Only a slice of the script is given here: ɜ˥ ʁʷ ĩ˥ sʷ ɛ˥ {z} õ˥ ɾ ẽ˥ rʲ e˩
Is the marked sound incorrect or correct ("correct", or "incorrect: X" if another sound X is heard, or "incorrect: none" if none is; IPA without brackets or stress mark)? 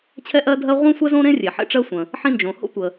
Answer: correct